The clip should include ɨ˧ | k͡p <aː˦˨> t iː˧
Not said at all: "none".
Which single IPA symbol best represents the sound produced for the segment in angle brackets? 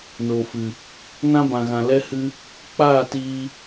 aː˦˨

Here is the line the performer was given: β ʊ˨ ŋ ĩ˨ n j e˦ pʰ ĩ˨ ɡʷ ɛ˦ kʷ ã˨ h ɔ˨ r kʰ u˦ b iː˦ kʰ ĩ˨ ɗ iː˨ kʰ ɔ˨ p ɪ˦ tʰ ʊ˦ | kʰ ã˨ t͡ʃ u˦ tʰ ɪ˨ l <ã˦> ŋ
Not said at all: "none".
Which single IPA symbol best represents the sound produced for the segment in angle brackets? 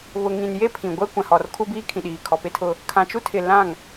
ã˦˨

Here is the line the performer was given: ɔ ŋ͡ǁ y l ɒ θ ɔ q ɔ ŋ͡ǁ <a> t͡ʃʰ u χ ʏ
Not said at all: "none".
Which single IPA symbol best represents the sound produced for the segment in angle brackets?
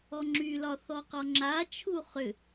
a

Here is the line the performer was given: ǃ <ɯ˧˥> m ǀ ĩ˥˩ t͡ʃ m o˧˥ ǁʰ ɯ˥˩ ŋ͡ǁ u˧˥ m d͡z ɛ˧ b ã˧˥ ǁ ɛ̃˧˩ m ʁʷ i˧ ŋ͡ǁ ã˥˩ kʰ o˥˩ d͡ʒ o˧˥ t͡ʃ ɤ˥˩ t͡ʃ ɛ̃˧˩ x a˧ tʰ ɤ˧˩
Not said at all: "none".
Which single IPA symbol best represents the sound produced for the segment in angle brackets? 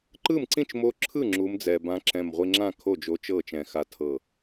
ɯ˥˩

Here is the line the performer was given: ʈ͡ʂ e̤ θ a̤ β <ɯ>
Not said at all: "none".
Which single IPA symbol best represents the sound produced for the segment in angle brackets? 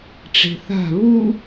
u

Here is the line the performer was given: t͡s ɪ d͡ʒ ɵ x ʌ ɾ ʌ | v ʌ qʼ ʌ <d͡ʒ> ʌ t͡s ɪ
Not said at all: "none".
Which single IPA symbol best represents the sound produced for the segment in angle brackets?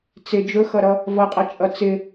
t͡ʃʼ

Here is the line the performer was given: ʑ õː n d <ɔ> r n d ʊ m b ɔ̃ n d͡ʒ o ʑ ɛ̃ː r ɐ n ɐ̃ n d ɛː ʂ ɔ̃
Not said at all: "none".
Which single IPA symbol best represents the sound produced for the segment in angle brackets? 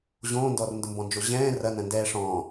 ɔ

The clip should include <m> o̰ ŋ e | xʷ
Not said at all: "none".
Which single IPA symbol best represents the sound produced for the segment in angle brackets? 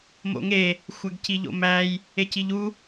m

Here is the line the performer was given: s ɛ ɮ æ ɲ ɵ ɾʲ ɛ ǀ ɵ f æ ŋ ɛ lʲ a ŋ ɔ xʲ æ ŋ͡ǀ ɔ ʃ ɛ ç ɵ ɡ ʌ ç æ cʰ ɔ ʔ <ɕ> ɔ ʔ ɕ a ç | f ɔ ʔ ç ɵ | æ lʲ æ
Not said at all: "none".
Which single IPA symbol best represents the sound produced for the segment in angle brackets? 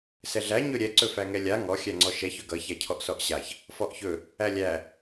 s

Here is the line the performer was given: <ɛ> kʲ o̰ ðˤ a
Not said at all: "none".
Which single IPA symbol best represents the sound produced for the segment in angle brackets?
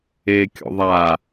e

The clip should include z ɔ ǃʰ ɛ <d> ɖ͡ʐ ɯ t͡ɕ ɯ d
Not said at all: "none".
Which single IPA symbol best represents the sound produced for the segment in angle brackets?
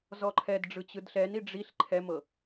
d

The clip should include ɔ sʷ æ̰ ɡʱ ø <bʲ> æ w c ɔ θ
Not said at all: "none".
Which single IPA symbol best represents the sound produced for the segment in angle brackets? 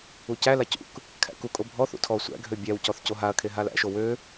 bʲ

